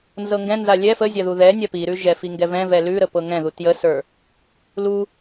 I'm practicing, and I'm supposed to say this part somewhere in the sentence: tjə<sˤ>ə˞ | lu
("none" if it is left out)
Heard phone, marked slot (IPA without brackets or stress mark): s